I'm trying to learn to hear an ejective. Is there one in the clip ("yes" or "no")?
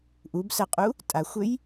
yes